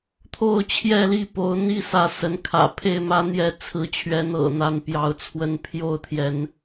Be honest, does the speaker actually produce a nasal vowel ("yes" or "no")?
no